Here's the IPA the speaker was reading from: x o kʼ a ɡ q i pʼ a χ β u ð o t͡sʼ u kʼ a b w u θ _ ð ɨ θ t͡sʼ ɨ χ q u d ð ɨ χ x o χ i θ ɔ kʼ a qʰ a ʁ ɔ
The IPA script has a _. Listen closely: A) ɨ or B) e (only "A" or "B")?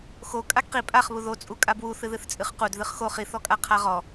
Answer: A